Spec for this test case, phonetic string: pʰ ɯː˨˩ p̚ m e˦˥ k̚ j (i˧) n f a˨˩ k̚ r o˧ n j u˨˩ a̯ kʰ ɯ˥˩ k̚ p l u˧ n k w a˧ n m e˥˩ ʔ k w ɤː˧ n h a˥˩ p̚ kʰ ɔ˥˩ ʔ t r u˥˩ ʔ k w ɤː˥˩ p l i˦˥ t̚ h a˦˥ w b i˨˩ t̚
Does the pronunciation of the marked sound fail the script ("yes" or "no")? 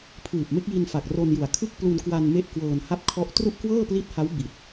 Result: no